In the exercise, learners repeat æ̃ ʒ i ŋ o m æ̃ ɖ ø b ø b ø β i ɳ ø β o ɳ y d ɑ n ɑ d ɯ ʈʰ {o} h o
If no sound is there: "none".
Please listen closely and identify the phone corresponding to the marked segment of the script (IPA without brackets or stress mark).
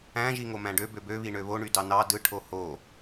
o